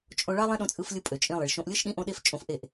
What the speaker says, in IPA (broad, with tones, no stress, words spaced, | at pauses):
t͡ʃʼõ˧ɭɑ˦ lˠẽ˦ɗõ˧t͡sʼɯ˧flʲɯ˧ pʼø˨t͡ʃʼĩ˧lˠi˨ɭ ʃõ˧ʔlʲɯ˦ʃ ɗĩ˦ʔõ˦ɗe˦f t͡ʃʼõ˧fʔe˦˨ʔ